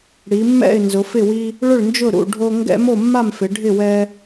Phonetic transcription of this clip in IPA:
ɽi˩˧mːɛ̰˥˨ɪ̯ nzʊ˩˧fɪ˥˨wi˦ | ɭʊ˥˨ɭnd͡ʒʊ˥˨ ɾṵ˥˨ ɖʱo˦ ŋɡɛ̰˦mo˥˨mːa˥˨mfɪ˩˧ ɖʱɪ˥˨ wɛ˦

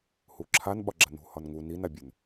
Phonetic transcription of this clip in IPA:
huǁʰan ɓɒɡ͡ǁanṳ hɒnŋu ninabʲɵn

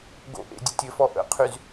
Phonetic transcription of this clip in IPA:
ɡo̰ʔḛ dʲətʲɘfɔ ʔə̰qʰyz

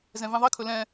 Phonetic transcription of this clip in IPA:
zɛ̃vĩðˤi kʰɵlɛ̃

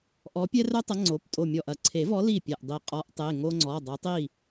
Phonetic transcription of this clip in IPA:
ʔɔ˨˦pʲɛ˦rœ˦tˤɐ˨˦ ŋ͡ǀo˩˧˩ptʼo˧˩mʲɔ˧˩ʔ ɐ˧˩ǀʰe˨˩˦vɔ˨˦ li˥˩pʲɛ˧˩ʔdˤi˧˩ qʼɔ˨˦ʔtˤe˩˧˩ ŋo˦ŋ͡ǀɔ˩˧˩ dˤo˨˦tˤi˥˩

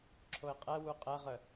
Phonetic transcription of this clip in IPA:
ǁʰoɪ̯qʼɛwu qʼɛʁə

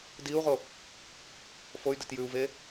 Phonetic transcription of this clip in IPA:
diu̯ʁo | foy̯det jʉu̯ve

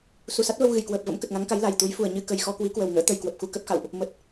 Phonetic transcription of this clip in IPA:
su˨˩sa˦˥t̚və˧w ɣɨ˧˩jkwəː˨˩p̚və̰˧˥m kə˨˩t̚ŋa˨˦ŋka˨˦j la˨˩jt̪u˨˦j fu˨˩ə̯ ɲɨ˧kə˨˩j xɔ˧kwi˨˦kwə˨˩wŋə̰ː˧˥ t̪ə˨˩jkwə˨˩p̚xu˧ kə˦˥p̚xa̰˧˨wʔ | mə˨˩t̚

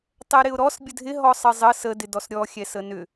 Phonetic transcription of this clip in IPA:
tˤɛɾɪʊ̯ɾɔs bʲədʱɪ ɦɔsˤəzˤə sə dɪdɔsɾʲɔ xʲɛsənʏ

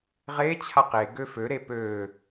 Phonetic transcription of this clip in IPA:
ʁe t͡ɕʰaqe ɡøfø ɾepø

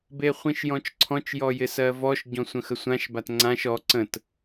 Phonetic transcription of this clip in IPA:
beχʷĩʃjɔ̃t͡ʃǀʰɔ̃t͡ʃ jɔjɪsɜvɔʃ ɟɔ̃sʷə̃xəsʷãʃ batŋ͡ǀãʃ ɔ ǀə̃t

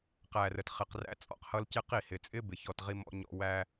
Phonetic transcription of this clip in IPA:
qæ˨rə˨tχɪ˨q ræ̰˦t͡sʼɔ̰˦qhʌ˦l cɪ˦qi˦˨ hɪ˨t͡sʼɪ˦ bɪ˨çɔ˦˨tʁi˦ mɔ̰˦ɲɔ̰˦ wæ˦

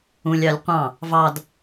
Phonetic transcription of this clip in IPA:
ũlʲɑlʲ qʷɑ̃ | vɑd

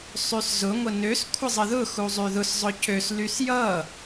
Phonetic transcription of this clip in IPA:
sˤyszʊ ŋʷənøs kʷʰəzˤəðʊ xuzˤyðʊs zˤʊcøs lysjʌ

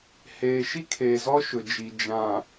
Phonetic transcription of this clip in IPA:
heː˨ʃi˦kʰeː˨zɔ˦ ʃʊ˨d͡ʒi˨ d͡ʒã˨

